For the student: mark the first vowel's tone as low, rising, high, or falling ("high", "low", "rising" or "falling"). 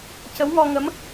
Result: rising